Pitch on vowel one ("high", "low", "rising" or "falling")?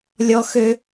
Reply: high